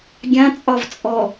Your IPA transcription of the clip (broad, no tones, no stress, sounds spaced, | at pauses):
ɡʲ ã t͡sʼ ɒ v t͡sʼ ɔ